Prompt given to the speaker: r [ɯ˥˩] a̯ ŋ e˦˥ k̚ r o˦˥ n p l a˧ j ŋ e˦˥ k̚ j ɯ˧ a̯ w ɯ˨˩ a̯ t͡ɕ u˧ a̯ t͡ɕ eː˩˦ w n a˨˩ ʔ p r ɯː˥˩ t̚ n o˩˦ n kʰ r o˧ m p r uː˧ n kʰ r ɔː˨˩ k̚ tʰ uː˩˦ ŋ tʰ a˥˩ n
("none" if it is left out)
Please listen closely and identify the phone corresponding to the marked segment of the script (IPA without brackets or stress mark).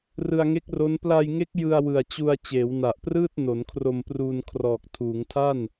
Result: ɯ˧